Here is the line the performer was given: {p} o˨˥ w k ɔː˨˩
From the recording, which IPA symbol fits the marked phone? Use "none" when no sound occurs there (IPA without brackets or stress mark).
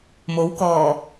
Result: m